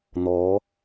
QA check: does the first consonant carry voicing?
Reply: yes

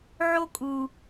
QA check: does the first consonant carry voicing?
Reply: yes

